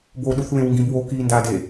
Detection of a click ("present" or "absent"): absent